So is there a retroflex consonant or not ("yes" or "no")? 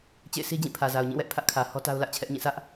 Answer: no